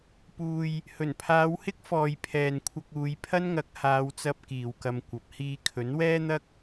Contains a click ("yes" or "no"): no